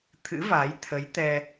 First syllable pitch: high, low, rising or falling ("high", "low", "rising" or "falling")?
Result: rising